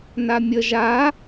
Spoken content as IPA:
n a mʲ ə ʒ a

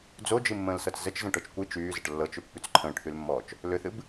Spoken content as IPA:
d͡z o d͡ʒ ɨ mː ə̃ː l s ɤ t͡s z ə t͡ʃ z ə̃ ʈ ɤ t͡ʃ kʷ ɨ t͡ʃ yː z ə ʈ lː ɤ t͡ʃ ʏ pː y t͡s ǃʰ ə̃ː ʈ θ y l mː ɔː t͡ʃ | l ʏ θ ɨ b

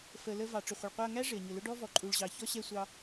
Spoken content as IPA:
f ə˨ l ə˧ v ɑ˨ ʈ͡ʂ ʊ˨ χʷ ə˨ ɭ qʷ ɛ˧ ɐ̯ ŋ æ˦ ʐ ɪ˨ ɐ̯ ɲ ʊ˨ l ʊ˦ ɖ ɔ˦ v ɔ˨ ǃʼ u˨ ɭ ʑ ɑ˨ ç ɔ˦ ɕ ɛ˦˨ sʷ ɑ˧

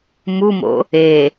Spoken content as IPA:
m u m o̰ | e

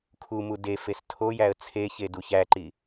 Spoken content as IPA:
kʰ u m u d e f e s tʰ o j æ ə̯ t͡sʰ e ç e d u ç æ ǃ i

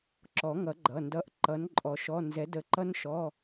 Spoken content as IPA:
ǁ ɔ˨˩˦ ŋ ʌ˨˩˦ ɡ͡ǃ ʌ˩˧˩ n d ʌ˨˥ ʔ ǃ ʌ˨˥ n ǃʼ ɔ˨˥ ʃ ɔ˧˥˧ n z ɛ˨˥ d ə˨˥ ǃ ʌ˦˥ n ʃ ɔ˧˥˧

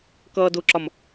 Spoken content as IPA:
k ʌː d ʊ ǁ ɒ m

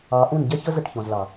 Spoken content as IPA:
ɑ˨˦ ʔ ũ˦˨ n ɟ ɛ˦ ç ə˦ z ə˦˨ ʈ ç ɔ̃˨ z l ɑ˨

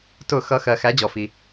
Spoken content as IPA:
t ʊ˧˩˧ x ʌ˩˥ x ɜ˩ x æ˩˥ d͡ʑ ɔ˩ f i˩

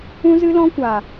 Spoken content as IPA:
ũ˧ z ɨ˧ l ɔ̃˧ kʷ a˨

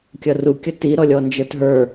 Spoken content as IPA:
kʲ ʌ r u kʲ ʌ t i ɾ ɔ lʲ ɔ n d͡ʒ ə˞ t ɦ ə˞

